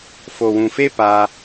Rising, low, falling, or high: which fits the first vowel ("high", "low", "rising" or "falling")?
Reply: low